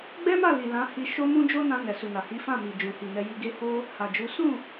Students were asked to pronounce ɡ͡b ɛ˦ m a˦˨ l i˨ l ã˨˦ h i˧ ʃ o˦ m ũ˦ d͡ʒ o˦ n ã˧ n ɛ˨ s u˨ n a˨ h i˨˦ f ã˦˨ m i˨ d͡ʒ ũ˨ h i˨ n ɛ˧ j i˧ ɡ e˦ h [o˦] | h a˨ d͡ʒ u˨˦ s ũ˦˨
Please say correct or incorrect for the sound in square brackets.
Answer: correct